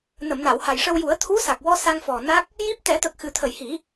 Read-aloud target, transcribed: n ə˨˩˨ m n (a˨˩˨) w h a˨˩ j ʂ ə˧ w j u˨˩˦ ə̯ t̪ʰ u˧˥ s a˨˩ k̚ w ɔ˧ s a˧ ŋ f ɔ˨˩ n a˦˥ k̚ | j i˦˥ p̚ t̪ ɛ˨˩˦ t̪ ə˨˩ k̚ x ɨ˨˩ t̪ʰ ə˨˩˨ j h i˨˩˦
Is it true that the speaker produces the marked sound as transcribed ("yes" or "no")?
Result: yes